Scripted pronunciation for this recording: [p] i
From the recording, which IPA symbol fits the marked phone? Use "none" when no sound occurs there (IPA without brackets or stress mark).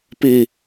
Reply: p